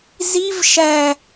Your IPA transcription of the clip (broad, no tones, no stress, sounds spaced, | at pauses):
z i v ʃ æ